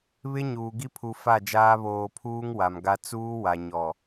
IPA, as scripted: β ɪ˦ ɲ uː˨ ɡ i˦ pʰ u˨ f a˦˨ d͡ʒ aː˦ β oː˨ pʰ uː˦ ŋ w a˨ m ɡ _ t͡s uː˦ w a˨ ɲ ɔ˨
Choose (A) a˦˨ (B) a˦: B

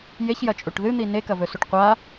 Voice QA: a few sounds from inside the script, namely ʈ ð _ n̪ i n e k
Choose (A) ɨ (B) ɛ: A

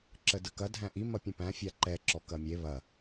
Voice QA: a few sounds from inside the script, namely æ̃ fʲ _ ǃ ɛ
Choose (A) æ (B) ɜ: A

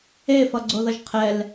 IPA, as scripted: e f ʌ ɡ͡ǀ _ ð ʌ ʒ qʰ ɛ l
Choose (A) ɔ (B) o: B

